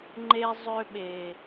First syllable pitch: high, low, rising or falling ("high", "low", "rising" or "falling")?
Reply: high